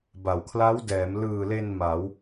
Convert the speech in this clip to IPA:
b a˩˦ w kʰ l a˦˥ w d ɛː˩˦ m l ɯː˨˩ l e˧ n m a˩˦ w

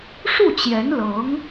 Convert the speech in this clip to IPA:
ʂ u˥˩ t͡ɕ j ɛ˧˥ n l ɤ˧˥ ŋ

